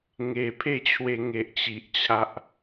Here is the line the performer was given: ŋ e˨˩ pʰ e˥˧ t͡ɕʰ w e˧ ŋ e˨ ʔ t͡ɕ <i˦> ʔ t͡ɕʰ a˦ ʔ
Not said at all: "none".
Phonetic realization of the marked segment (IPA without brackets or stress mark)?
i˨